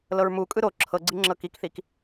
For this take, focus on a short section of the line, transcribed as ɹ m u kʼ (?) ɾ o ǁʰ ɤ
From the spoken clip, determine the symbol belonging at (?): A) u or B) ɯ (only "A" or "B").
B